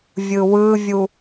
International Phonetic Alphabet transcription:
vʲɯwɯvʲu

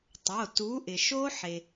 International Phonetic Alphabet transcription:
tˤo˩˧˩tu˨˥ ʔɪ˩ʃo˦˥ħe˩

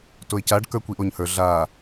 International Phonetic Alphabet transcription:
toɪ̯caɖ kə˞kʷiʔoɲhə˞ ɮa

